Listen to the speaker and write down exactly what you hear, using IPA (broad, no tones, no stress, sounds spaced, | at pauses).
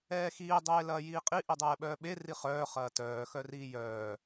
ɛː x iː dˤ eː l ɐː j iː qʼ i ʔ i dˤ ɛː ɓ œː ɓ e r i χ œː χ ɐː t œː x œ r iː j œː